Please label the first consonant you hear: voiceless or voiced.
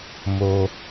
voiced